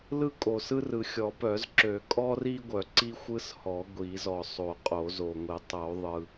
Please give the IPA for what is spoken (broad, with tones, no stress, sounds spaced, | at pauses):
l ɯ˥ kʼ o˨ s ɯ˥ r ɯ˨ xʲ ɔ˨˩˦ p œ˨˩˦ z ǁ ø˨˩˦ kʼ ɔ˥ r i˥ ɡʷ œ˨˩˦ ǀ i˥ xʷ ɯ˥ s h ɔ˨˩˦ ɡʷ i˨˩˦ z ɔ˨ sˤ o˨˩˦ qʼ o˨˩˦ z o˨ ŋʷ i˨˩˦ tˤ o˨˩˦ ðˤ ɯ˨